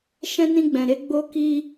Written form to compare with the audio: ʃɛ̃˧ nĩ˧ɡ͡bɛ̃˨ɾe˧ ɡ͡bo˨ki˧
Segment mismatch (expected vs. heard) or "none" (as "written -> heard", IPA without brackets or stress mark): o˨ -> o˧